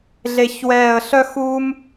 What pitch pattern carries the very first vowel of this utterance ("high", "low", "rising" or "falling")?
falling